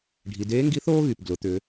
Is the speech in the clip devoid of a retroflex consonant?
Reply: no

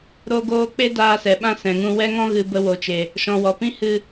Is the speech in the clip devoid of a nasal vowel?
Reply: no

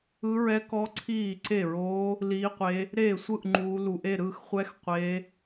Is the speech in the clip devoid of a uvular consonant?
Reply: no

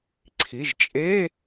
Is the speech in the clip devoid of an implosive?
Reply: yes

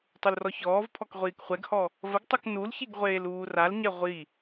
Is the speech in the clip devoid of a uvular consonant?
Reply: no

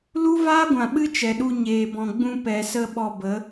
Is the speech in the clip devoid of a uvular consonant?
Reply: yes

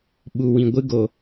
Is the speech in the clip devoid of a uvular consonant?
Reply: yes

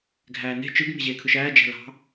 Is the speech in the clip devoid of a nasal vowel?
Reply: yes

